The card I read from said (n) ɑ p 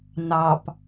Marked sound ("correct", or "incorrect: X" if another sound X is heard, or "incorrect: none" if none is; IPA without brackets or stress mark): correct